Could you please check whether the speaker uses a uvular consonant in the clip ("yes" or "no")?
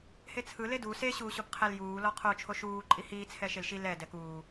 yes